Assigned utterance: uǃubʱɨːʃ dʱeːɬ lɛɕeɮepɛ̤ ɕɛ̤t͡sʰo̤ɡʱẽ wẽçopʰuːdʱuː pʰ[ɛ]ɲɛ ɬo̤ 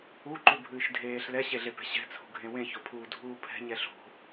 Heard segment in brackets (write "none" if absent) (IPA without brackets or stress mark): ɛ̤